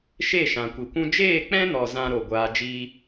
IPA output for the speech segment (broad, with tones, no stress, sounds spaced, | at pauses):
ʃ e˦˨ ʃ ã˨ kʷ i˨ kʷ ũ˦ d͡ʒ eː˦˨ k͡p ɛ̃˦ n ɔ˨ z ã˦ ɾ o˨ ɡʷ aː˧ d͡ʒ iː˦